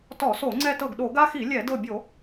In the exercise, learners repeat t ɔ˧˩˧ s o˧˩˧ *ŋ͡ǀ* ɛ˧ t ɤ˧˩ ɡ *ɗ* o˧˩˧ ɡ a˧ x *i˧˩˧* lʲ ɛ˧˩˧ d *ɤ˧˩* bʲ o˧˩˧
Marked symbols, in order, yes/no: yes, yes, yes, yes

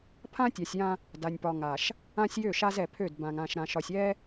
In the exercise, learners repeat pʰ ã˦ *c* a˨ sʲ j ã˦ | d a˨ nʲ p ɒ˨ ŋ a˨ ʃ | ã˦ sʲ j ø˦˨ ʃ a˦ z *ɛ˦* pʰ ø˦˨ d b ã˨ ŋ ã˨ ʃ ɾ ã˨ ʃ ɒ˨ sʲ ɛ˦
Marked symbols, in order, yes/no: no, no

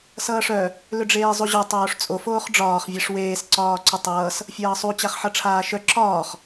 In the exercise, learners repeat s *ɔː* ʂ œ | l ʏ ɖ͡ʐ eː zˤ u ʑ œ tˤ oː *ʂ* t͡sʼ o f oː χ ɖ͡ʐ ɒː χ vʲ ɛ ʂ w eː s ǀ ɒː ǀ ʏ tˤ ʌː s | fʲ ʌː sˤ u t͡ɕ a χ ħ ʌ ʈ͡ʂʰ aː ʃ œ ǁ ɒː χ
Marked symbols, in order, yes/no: no, yes

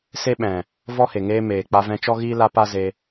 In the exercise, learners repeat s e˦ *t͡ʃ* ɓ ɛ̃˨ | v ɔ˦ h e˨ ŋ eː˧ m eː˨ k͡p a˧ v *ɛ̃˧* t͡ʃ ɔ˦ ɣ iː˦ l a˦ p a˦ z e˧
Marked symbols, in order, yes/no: no, yes

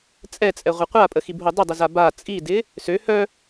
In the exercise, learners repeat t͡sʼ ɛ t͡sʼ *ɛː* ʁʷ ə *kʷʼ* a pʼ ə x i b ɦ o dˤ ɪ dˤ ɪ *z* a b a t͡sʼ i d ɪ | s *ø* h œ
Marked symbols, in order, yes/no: no, no, yes, yes

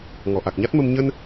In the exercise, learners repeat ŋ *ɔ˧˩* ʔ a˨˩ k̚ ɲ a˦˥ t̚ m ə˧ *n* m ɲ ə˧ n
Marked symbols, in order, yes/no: yes, no

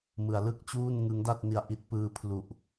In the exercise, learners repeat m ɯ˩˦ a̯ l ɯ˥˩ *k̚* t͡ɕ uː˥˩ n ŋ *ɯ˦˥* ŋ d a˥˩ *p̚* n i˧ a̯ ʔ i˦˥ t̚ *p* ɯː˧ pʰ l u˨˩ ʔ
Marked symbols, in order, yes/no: yes, yes, no, yes

